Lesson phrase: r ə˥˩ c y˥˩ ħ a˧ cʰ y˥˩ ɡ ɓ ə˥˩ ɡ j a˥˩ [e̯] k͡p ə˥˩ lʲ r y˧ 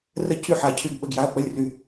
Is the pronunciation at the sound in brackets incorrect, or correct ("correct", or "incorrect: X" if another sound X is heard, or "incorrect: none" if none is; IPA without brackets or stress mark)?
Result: incorrect: ɐ̯